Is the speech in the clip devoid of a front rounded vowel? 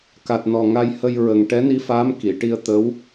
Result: yes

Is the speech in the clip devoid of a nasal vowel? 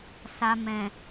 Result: no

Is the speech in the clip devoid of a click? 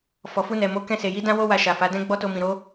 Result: yes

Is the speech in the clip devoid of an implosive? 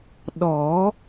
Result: no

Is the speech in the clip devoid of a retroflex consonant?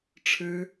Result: no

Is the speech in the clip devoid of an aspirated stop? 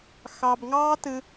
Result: yes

